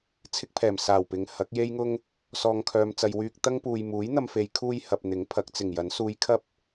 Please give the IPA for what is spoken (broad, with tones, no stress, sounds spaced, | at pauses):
t͡sʰ ɪ˥ k̚ pʰ ɛː˨˩ m s aː˨˩ w p ɪ˨˧ ŋ h ɐ˨˥ k̚ j e˥ j ŋ ʊ˥ ŋ | s ɔː˨ ŋ kʰ œː˨ m t͡s ɐ˨ j w yː˧ k̚ t̪ ɐ˥ ŋ p uː˨ j m uː˨˥ j n̪ ɐ˧ m f e˨˧ j kʰ uː˧ j h ɐ˨ p̚ n̪ ɪ˨˥ ŋ pʰ ɐ˨˥ k̚ t͡s ɪ˨˩ ŋ j ɐ˨˥ n s uː˨ j kʰ ɐ˥ p̚